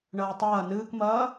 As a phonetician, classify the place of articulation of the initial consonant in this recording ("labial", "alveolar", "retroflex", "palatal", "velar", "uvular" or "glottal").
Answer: retroflex